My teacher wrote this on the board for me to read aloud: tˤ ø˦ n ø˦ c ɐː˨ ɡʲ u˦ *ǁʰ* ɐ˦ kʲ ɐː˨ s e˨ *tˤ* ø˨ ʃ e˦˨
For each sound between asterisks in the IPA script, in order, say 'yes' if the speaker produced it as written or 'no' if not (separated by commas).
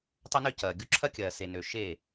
yes, no